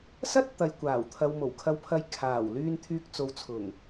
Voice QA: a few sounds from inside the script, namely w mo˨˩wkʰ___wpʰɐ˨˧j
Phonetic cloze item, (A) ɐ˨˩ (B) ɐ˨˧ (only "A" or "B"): B